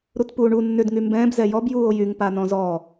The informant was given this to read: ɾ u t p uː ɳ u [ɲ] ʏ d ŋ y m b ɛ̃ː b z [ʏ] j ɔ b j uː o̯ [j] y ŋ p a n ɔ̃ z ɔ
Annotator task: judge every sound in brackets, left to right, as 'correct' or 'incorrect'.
incorrect, incorrect, correct

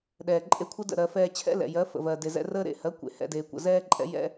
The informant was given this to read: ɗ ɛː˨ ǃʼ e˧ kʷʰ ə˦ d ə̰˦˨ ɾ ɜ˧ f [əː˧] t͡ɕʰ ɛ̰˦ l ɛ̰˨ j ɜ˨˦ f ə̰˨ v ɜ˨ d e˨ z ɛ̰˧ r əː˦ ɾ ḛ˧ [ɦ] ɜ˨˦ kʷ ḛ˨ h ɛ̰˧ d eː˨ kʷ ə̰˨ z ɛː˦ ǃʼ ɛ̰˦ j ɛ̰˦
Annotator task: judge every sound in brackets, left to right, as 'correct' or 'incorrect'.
incorrect, incorrect

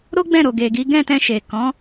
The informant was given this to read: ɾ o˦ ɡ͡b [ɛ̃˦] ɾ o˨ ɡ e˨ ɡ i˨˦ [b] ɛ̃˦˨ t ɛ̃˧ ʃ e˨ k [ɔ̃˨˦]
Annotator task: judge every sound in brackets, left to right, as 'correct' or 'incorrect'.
incorrect, incorrect, correct

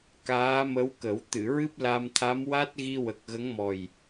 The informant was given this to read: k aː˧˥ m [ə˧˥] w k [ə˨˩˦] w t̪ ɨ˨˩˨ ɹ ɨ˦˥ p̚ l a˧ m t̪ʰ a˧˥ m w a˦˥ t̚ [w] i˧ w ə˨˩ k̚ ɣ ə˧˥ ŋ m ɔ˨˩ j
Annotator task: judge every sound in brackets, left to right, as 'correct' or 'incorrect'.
correct, correct, incorrect

